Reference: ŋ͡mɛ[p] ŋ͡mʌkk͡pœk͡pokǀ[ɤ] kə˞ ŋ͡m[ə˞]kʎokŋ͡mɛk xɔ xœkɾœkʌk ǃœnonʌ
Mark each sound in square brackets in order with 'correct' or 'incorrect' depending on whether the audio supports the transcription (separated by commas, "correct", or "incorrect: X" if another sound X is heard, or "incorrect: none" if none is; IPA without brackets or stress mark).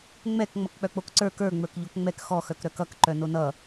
incorrect: k, incorrect: ə˞, correct